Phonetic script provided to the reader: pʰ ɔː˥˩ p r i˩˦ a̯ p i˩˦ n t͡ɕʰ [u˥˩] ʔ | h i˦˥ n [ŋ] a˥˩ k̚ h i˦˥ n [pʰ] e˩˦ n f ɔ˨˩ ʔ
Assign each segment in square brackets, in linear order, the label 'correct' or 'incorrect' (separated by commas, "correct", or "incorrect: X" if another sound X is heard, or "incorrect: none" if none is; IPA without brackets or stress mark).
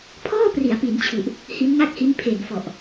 incorrect: u˨˩, correct, correct